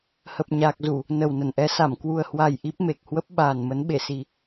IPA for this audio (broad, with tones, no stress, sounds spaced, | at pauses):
h ə˨˩ p̚ ɲ aː˨˩ k̚ z u˧˩˨ | n ə˨˩ w n ə˧˩ n ʔ ɛ˧ s a˧˩ m k w u˨˩ ə̯ h w a˨˩ j ʔ i˦˥ p̚ m e˨˩ k̚ h w ə˦˥ p̚ ɓ aː˨˩ n m ə˨˦ n ɓ e˧˩ s i˨˩